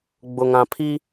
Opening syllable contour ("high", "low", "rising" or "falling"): low